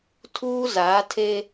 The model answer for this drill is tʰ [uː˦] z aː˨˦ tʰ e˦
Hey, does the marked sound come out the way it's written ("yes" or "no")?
yes